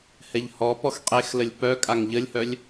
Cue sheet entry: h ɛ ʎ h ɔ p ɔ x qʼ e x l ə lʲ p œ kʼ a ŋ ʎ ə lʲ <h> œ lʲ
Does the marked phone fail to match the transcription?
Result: no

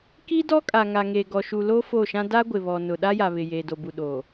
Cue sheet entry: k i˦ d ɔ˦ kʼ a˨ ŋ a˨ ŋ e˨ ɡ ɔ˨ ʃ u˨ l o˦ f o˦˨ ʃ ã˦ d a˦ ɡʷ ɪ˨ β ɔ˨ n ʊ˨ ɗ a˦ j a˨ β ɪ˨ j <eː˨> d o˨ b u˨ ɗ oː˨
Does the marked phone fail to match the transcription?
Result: no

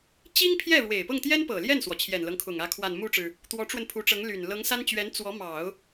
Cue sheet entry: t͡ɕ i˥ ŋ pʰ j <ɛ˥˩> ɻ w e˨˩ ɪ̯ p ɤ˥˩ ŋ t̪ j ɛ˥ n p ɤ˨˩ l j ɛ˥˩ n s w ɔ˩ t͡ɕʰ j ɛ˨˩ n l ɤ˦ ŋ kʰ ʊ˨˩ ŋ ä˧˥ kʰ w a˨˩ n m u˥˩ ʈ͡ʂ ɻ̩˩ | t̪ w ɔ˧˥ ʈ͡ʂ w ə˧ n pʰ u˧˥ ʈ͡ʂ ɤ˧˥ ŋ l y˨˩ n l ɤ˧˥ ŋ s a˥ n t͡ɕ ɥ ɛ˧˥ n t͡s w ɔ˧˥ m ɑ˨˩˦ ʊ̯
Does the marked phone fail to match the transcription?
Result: no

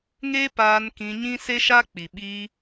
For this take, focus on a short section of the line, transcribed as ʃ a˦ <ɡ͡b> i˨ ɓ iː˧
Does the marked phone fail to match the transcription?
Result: yes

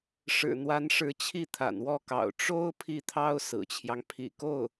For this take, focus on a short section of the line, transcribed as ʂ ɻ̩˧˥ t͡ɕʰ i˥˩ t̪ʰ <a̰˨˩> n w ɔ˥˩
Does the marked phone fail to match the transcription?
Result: no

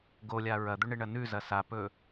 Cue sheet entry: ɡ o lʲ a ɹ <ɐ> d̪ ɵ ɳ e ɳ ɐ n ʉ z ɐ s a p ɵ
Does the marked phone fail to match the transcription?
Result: no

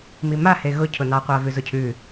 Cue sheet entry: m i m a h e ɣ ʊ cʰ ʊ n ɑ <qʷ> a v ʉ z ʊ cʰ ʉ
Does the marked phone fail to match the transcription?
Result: no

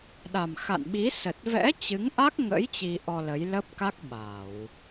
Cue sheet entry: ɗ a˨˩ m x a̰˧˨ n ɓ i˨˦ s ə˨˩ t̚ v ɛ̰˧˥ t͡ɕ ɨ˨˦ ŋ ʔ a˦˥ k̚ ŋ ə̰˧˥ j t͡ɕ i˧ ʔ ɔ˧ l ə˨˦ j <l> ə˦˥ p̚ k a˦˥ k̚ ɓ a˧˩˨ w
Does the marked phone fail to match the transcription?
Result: no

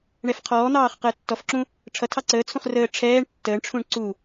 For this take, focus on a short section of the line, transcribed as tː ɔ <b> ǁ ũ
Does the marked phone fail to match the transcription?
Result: yes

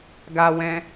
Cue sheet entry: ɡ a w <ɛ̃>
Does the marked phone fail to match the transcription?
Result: no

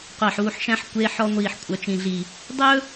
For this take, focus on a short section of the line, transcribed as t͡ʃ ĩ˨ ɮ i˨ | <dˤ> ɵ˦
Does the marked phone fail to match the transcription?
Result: no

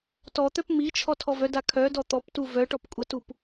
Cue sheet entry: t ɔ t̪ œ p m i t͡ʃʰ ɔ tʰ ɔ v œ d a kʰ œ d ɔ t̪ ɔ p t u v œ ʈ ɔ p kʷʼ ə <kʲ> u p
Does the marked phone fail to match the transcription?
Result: yes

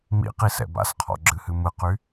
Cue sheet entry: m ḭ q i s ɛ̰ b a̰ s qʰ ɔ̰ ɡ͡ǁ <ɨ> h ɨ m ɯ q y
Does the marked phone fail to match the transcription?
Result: no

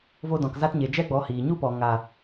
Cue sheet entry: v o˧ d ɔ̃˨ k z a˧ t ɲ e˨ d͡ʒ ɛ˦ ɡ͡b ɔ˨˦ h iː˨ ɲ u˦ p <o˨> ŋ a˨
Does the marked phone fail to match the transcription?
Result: yes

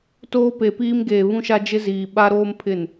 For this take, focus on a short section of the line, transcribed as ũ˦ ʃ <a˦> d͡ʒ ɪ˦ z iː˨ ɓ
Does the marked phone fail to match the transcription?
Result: no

